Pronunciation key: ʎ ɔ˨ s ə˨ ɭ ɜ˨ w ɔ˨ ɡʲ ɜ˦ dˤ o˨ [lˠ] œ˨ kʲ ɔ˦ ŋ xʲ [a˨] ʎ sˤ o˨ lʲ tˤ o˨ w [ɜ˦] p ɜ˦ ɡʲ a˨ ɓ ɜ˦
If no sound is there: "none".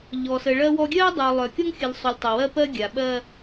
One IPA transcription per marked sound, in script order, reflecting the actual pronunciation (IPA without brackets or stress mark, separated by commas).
lˠ, ə˨, ɜ˦